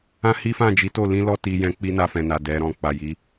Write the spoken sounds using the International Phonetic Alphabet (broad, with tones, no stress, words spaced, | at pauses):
ã˦hi˦fã˦˨ d͡ʒi˨˦to˦˨ lĩ˧lɔ˧ ti˧jɛ̃˦ k͡pi˦na˧fɛ̃˨na˨ dɛ˨˦ɾɔ̃˦˨ k͡pa˨ji˨˦